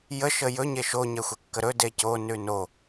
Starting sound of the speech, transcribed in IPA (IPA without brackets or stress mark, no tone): j